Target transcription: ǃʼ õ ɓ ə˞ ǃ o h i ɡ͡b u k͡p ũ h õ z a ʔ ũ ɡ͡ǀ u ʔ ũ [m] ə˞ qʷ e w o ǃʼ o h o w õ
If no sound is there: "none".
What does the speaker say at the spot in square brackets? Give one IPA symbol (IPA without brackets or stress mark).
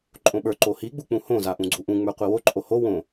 ŋ͡m